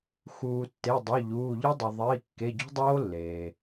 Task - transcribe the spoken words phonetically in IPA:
x uː˩ tː e˩˧˩ dˤ ʊ˩˧˩ ʎ uː˩˧˩ ʎ ɪ˦˥ dˤ ʊ˩ ðˤ iː˩˧˩ kː e˩˧˩ ɟ o̤˦˥ dˤ oː˦˥ lː eː˩

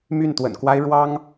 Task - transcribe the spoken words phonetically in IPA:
m y˥˩ n t̪ w ə̰˨˩ n k w a˥ ɪ̯ ɻ w ɑ˥ ŋ

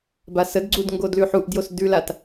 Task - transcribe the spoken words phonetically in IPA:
b a s ə d ɡ͡ǀ u d ŋ ɡ o d l ʉ ħ u ʔ d j o s d ʉ l a t

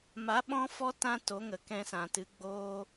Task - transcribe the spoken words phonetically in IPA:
m a˨˦ ɓ ɔ̃˦ f ɔ˦ t ã˦ t o˨˦ ŋ ə˨ k ɛ̃˧ s ã˨ t ɨ˨˦ ɡ͡b oː˦

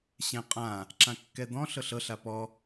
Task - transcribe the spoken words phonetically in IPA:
ɕ ɛ̃ qʼ ã | ǁ ã kː ɛ d̪ ɔ̃ ɬ ɤ ɬ ɤ ɬ a p ɔ

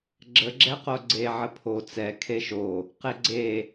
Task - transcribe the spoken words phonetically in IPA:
ɡ͡ǁ ə ɡ͡ǁ ɛ q o ɡ͡ǀ e ʕ ə pʰ o t͡s ɛ kʰ e ʃ o | q e ɡ͡ǀ e

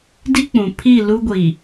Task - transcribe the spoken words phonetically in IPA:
d i˦ k͡p ũ˨ pʰ i˦˨ l u˦ ɡʷ i˨

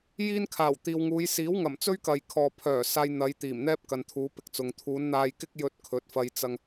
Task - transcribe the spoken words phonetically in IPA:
j iː˥ n kʰ aː˨˩ w t̪ iː˨ w ŋ uː˨˧ j s iː˨˥ w ŋ ɐ˨˩ m t͡s ɵ˥ ɥ k ɐ˨ j kʰ ɔː˨ pʰ œː˨˩ s aː˧ j n̪ ɐ˨˧ j t̪ iː˨˩ m n̪ ɛː˥ p̚ k ɐ˨ n t̪ʰ uː˨˧ p ɪ˧ k̚ t͡s ʊ˨ ŋ t̪ʰ uː˨˧ n n̪ aː˧ j k ɪ˥ k̚ j ɵ˧ t̚ kʰ ɵ˨˥ t̚ f ɐ˧ j t͡s ɐ˧ ŋ

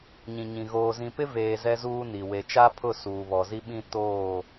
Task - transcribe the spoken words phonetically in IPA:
ɲ ĩ˨ ɲ ĩ˨ ɣ oː˨ z ĩ˨ p ɪ˦ v eː˨ z ɛ˦ z uː˦ n i˨ w e˨ t͡ʃ a˦ pʰ ʊ˦˨ s uː˨ β ɔ˨ z i˦ ɓ ĩ˦ t oː˦˨

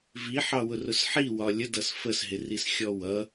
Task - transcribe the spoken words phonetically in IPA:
v i ħ ɑ w ʊ r ʊ s ħ i w ɒ lʲ ə d ʌ s f ə s ɦ ɪ r i s xʲ ɔ w ʌ

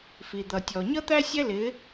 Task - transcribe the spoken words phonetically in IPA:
f i˨ d̪ ʌ˨ tʲ ɔ˨ ɲ ʌ˦ t̪ æ˦ sʲ ɛ˦ l ɪ˨˦

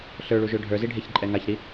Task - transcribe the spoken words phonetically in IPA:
ɬ ə˞ ɭ u ʒ ø ɖʱ ə˞ z i ɖʱ e ç ǃʼ ɛ ŋ a ç ɾ i

